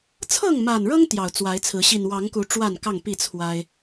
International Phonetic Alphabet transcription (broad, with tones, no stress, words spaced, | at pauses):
t͡sʰɤ˥˨ŋma˨˩nɻɤ˦ŋ t̪jɑ˨˩ʊ̯t͡swa˨˦ɪ̯t͡sʰɹ̩˨˦ ɕi˨˩nwɑ˨˦ŋku˨˦ ʈ͡ʂwa˥˨nkɑ˥˨ŋpi˥˨ t͡sʰwa˦ɪ̯